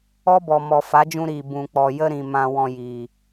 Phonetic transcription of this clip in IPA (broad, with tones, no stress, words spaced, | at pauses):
ɔ˦bɔ˨ mɔ˨fa˨˦d͡ʒũ˧ɾiː˨ bũ˨k͡pɔ˨jə˧ɾĩ˨ mã˧ wɔ̃˧jiː˨